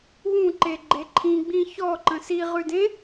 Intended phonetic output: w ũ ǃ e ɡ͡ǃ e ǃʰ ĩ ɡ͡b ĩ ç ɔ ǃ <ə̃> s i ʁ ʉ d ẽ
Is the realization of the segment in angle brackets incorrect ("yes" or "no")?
no